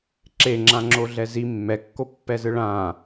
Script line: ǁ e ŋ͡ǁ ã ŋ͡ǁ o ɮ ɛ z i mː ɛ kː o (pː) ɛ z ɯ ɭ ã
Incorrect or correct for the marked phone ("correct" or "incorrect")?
correct